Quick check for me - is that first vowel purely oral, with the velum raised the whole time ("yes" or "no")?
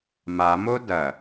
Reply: yes